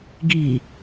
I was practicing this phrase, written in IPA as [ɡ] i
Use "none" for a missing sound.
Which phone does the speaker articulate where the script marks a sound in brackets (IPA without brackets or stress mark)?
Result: ɡ